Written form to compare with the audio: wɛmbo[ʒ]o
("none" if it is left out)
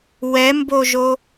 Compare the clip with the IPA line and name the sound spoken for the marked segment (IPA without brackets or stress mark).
ʒ